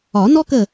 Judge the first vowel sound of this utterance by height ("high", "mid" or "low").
low